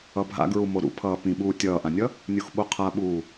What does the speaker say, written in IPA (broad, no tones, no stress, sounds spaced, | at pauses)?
ʌ bʱ a̰ ɡ ɹ u m o ɾ ṵ pʰ ʌː p ĩ ɓ uː tʲ ʌː ʔ ã nʲ ʌ | nʲ u x ɓ o qʰ a ɓ uː